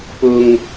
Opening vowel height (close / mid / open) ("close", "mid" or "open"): close